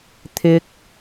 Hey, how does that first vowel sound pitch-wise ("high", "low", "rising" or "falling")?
low